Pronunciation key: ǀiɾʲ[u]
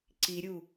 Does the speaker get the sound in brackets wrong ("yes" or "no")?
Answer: no